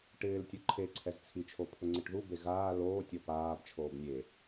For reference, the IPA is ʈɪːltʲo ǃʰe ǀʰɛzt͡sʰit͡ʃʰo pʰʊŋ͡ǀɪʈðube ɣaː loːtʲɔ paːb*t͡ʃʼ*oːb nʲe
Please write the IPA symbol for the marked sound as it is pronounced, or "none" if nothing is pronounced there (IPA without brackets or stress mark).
t͡ʃʰ